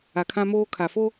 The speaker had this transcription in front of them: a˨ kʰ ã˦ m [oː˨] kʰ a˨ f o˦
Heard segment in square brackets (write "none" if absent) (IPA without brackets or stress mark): oː˦